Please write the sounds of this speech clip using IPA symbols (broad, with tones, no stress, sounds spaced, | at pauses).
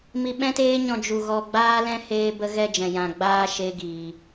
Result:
m i˧ ɓ ɛ̃˦ t eː˦ ɲ ɔ̃˧ d͡ʒ u˧ ɣ ɔ˧ ɡ͡b aː˦ l ɛ̃˦ h eː˦ b ə˦ ɣ ɛ˧ d͡ʒ ɛ̃˨ j ã˨ ɡ͡b aː˧ ʃ e˦ ɡ iː˨